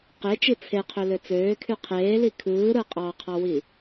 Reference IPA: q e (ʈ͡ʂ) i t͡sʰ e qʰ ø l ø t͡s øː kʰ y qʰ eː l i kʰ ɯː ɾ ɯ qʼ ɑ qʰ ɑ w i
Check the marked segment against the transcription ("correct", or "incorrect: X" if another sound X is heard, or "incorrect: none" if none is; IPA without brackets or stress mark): incorrect: t͡ʃ